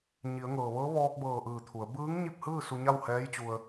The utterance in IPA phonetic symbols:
ɲi˩˧ə̯ŋɤː˩ʋɤː˧˥ ʋɔː˧k̚bɤː˧˩ ʔɯː˧˩t̪ʰu˩˧ə̯ bɯː˧˥ŋɲi˥˨p̚hɯː˥˨ su˧ɲa˥˨whɛː˧˥jt͡ɕu˧ə̯

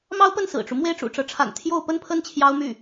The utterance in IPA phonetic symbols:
mɑ˥ʊ̯pə˥˩nsɹ̩˨˩ʈ͡ʂu˦ mwe˥˩ɪ̯ʈ͡ʂṵ˨˩ʈ͡ʂɤ˧˥ʈ͡ʂʰa̰˨˩n t̪ʰjo˥˧ʊ̯ pə˥˧npʰə˥˩n t͡ɕʰjɑ˥ʊ̯my˥˩

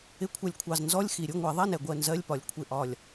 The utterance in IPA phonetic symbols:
ɪ˨˦kʷʰʌ˨˩lʲkʷʰɑ˨˩z nzɔ˧˥˧lʲxi˨˩ ɾʲʊ˧˥˧ ŋʷɛ˧˩˧ðˤɛ˧˥˧nɛ˨˩ ɡʷɜ˦˨nzɜ˧˥˧lʲpɒ˨˩lʲ kʷʰɪ˨˩ʔɒ˨˩lʲ

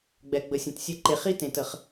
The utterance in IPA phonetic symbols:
ɡ͡bɛ˨ɡ͡bə˨sʲə̃˨tsʲɘ˦˨ ǃe˨χi˦tẽ˨t ə˦χ

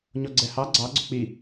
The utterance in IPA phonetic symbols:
ɲɔɡ͡ǀɛhɑ ɡ͡ǀɑ ɡ͡ǀɵk͡pi

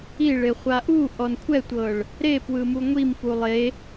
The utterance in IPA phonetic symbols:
iɭeχʷa ʔuʔɔn kʷʰɛtʷɤɭ | ɾepwɯmu ŋʷimfu lˠe

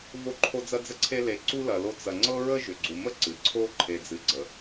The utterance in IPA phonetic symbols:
vo˦ǃʰo˦ d͡zɐ˦d͡zə˦ǀʰe˦le˨ ǀu˥lɐ˨lo˦ t͡sɐ˨ŋ͡ǀɤ˥ɹə˥ ʒʏ˨ɡ͡ǀu˨ mə˥ ǀɨ˩ ǀʰo˥ ǃʰe˨d͡zɨ˨ɡ͡ǀə˩

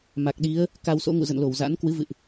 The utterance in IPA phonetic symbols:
ma˨˩k̚ɗi˨˦ə̯ | ka˧wso̰˧˥ ŋṵ˧˨zə̰˧˨nlo˧˩w za̰˧˥n kwɨ˨˦vɨ̰˧˨ʔ

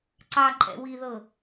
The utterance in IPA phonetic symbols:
ǀɑǃʼɛ̰ wiðɤ

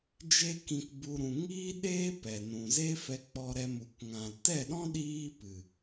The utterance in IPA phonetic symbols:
d͡ʒe˦kĩ˧kbu˧ ɾũ˨ŋiː˦ɗeː˦ pɛ˨ nũ˨ze˦ fɛ˧k͡pɔ˧ɾɛ˧mu˨k ŋã˨l tɛ˦˨ɗɔ̃˦ ɗiː˦pɨ˨

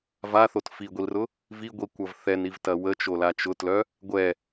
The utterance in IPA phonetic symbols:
vaθot fiɡʷilrʊ | viɡʷikʷɐv θɛnivtɐ wət͡ʃola t͡ʃʊtlœ | ɡʷɛ

